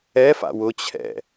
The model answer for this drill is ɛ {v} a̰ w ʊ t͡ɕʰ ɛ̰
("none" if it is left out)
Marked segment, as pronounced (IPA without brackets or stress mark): f